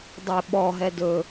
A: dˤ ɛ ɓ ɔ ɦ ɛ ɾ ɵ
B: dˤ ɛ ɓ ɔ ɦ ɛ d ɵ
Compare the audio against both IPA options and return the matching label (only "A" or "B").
B